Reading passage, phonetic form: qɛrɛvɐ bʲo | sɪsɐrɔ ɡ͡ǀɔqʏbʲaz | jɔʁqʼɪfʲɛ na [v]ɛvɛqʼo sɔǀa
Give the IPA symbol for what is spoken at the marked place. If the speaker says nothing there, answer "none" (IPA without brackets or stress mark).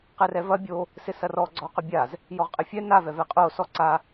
v